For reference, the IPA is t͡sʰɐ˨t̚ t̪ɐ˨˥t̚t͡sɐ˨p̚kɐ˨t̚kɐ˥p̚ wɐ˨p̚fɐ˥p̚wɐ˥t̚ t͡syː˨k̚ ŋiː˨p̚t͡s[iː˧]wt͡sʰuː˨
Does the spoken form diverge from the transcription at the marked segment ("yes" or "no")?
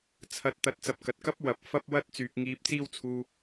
no